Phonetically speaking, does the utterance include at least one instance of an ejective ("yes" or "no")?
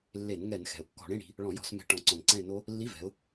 no